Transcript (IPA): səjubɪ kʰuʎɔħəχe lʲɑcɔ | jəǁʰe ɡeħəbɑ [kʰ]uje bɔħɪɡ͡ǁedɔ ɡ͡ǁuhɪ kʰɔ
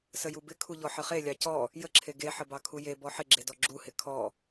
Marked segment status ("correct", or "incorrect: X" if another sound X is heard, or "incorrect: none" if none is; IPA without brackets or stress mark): correct